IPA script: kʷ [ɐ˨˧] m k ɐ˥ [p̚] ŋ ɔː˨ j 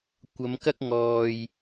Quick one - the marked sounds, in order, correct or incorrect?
correct, incorrect

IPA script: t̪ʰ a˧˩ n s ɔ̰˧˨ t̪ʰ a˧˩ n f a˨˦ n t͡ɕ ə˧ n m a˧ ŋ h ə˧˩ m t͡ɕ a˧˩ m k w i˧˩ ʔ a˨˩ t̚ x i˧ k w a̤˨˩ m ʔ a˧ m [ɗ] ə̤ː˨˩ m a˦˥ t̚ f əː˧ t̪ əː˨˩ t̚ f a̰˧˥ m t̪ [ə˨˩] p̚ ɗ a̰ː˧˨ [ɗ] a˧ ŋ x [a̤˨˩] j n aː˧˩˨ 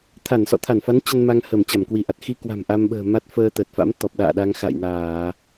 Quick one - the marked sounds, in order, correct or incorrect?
incorrect, incorrect, correct, incorrect

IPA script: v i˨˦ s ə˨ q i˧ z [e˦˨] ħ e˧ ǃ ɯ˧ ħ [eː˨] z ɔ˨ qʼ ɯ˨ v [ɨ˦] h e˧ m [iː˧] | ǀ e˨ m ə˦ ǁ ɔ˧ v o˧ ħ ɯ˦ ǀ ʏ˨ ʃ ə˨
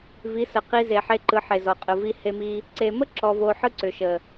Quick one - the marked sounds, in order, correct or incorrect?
incorrect, incorrect, incorrect, incorrect

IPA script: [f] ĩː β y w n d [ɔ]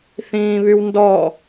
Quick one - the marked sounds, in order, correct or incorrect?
incorrect, correct

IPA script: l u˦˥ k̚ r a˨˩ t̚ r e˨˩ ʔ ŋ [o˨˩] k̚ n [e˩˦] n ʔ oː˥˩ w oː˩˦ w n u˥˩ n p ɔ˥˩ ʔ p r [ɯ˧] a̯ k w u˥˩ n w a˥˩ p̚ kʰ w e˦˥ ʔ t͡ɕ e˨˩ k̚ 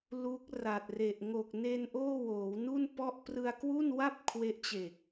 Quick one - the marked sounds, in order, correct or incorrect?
correct, incorrect, correct

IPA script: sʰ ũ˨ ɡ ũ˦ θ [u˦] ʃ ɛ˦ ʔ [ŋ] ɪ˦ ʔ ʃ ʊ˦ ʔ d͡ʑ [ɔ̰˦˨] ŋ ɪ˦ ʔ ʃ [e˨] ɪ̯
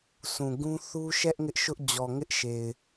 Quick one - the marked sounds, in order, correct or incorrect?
correct, correct, incorrect, correct

